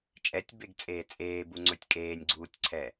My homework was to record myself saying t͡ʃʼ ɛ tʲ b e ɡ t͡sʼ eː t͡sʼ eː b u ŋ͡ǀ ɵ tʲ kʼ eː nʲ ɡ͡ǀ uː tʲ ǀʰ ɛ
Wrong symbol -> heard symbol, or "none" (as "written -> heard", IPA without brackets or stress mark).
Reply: none